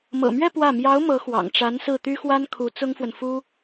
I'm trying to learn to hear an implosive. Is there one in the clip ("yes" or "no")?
no